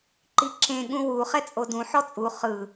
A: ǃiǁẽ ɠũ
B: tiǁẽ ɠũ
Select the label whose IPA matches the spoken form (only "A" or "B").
A